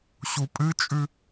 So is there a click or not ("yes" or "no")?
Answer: no